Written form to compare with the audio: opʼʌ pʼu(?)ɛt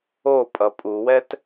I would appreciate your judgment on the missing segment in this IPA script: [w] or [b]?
w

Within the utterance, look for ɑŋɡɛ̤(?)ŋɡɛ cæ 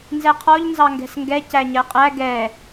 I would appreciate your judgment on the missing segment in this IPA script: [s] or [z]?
s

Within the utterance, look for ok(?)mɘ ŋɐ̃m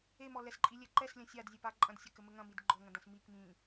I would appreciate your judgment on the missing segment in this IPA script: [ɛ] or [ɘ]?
ɘ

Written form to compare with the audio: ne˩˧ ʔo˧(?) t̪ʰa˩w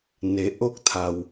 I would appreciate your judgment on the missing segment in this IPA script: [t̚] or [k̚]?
k̚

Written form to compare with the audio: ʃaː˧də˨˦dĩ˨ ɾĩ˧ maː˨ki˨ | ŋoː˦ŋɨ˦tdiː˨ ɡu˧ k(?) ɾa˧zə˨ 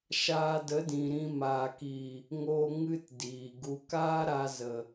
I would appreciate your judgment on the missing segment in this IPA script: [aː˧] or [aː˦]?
aː˦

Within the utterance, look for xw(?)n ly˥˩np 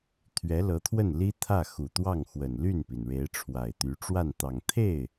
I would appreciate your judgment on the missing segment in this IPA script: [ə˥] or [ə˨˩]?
ə˨˩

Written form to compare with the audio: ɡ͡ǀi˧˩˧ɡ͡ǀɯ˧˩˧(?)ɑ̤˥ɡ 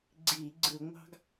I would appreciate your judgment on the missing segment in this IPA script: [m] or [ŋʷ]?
ŋʷ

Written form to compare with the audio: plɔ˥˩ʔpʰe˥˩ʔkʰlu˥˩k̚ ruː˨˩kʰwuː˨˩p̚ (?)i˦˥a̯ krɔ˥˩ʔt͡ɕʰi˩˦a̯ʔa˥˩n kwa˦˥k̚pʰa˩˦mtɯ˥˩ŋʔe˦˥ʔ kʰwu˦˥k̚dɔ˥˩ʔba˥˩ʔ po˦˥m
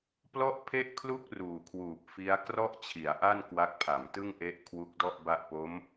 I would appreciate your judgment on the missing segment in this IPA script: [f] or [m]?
f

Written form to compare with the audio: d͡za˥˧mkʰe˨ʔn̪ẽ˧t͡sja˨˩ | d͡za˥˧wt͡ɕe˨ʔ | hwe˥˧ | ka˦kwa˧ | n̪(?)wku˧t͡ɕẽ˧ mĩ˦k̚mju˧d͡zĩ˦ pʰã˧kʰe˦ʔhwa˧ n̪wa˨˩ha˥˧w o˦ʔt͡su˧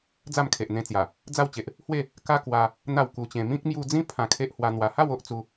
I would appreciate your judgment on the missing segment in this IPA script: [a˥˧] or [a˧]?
a˥˧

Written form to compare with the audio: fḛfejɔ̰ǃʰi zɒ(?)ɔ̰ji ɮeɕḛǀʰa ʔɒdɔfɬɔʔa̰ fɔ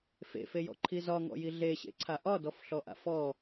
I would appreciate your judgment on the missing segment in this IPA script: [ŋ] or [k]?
ŋ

